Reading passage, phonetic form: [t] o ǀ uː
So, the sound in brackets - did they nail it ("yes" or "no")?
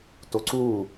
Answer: yes